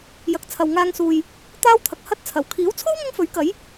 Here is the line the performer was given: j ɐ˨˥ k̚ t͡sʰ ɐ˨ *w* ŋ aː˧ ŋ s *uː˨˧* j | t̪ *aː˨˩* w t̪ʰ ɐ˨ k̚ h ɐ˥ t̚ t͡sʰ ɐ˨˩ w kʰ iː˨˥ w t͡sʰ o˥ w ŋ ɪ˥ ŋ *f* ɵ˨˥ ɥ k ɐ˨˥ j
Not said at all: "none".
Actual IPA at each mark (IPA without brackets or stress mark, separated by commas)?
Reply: w, uː˨, aː˥, f